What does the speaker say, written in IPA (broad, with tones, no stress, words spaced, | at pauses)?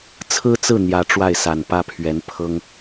t͡sʰɹ̩˥t͡sɹ̩˥˩ n̪jä˧˥ ʈ͡ʂwa˥˩ɪ̯sa˨˩n pä˥pʰɥɛ˧˥npʰɤ˥ŋ